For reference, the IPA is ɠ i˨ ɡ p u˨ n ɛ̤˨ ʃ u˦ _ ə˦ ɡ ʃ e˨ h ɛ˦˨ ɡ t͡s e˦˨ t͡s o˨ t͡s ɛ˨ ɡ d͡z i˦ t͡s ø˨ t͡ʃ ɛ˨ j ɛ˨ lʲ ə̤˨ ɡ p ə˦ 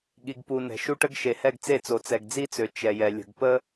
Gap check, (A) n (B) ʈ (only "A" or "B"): B